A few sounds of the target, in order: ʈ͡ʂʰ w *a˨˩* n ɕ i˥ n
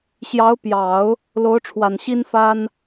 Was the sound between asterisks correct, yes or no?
yes